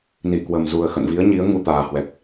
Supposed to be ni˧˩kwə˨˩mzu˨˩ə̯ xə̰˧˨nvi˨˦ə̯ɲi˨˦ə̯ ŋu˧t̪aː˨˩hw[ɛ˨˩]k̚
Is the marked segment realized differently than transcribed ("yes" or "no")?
no